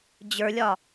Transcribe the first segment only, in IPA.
d͡ʑ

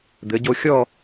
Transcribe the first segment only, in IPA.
d̪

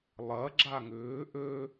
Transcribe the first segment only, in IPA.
lˠ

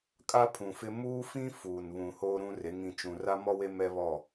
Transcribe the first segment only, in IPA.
kʼ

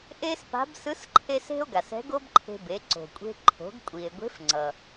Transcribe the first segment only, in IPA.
ʔ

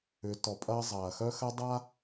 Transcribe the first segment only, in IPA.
ʏ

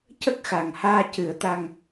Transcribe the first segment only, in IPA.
c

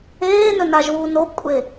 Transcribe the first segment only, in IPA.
eː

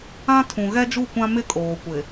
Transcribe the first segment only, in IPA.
ã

